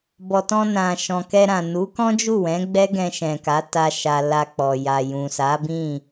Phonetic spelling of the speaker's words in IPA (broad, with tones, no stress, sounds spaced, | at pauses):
b ɔ˨ t ɔ̃˧ n ã˨ ʃ ɔ̃˨ k ɛ˧ ɾ ã˨ n u˨˦ k ɔ̃˦ d͡ʒ u˦˨ w ɛ̃˨˦ ɡ͡b ɛ˦ ɡ ɛ̃˧ ʃ ɛ̃˨ k a˨˦ t a˧ ʃ a˧ l a˧ k͡p ɔ˨ j a˨ j ũ˨ s a˨˦ b ĩ˦˨